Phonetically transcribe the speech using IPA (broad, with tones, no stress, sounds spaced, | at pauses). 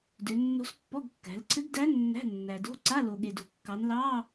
d ø˩˧ nː o̤˧˥ s pː ɔ˧˥˧ ɡ kː æ̤˩˧ l ǀʰ ɘ˧˥ ɡ d æ˧˥ nː æ̤˧˥˧ nː æ˩ d o̤˧˥˧ ǀ a˧˥˧ l o˩ ɠ e˩ d o̤˩ kː ɑ˩˧ n l ɑ˧˥˧